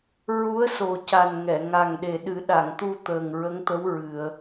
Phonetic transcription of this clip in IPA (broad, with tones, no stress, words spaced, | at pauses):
ɹu˧˥ə̯ so˨˩ca˨˩n ŋɛ˨˩˨ ŋa˨˩ŋɗe˨˩ɗɨ˨˩˦ ɗa˨˩˨ŋt̪u˧ t̪əː˨˩ŋɹə˧˥ŋt̪ə˧˥w ɹɨ˨˩˨ə̯